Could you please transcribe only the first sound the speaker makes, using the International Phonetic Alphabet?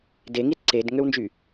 d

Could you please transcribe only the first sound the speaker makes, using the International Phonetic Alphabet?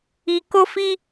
i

